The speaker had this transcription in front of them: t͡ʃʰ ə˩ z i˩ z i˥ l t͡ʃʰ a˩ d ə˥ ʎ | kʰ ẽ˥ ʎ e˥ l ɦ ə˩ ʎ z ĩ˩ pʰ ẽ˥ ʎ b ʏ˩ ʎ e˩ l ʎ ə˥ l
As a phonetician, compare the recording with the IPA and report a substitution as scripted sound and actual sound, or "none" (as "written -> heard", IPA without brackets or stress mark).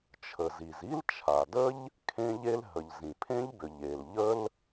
none